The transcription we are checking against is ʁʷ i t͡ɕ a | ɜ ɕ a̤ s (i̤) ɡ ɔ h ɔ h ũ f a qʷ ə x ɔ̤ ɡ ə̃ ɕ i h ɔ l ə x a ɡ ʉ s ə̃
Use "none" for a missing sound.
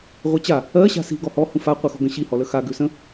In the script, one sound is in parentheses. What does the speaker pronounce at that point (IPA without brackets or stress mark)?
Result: i̤